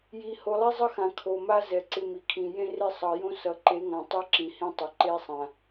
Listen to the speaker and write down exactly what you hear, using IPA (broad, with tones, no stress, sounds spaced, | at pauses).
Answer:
j i˨ h o˨ lˠ ɛ˦ zˤ ɤ˦ x ã˨ kʰ o˨ m a˦ z ɛ˨ ǀ ɪ˦ m i˨ kʰ ĩ˨ j ẽ˦ r e˦ sˤ ʌ˨ j õ˦ s ʌ˨ ǃ e˨˦ ŋ ã˨ tˤ i˦ ǁ ĩ˨ h ĩ˦ tˤ ʌ˨ ǃ e˦ sˤ ã˨